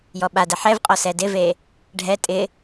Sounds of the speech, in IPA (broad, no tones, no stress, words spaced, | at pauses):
jɔɓadɛ ħɛvqʼɔ sɛdɪve | ɖʱɛ tʼɪ